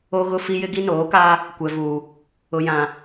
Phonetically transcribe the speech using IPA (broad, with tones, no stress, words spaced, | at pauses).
o˦ɣʊ˦fi˦ jɪ˦ɡi˦noː˨˦kaː˦ | kʷɛ˨vuː˨ | ʊ˨jã˨